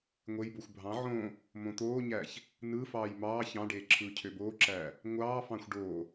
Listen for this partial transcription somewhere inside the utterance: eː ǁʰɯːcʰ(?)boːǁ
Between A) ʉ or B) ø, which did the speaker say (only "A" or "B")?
B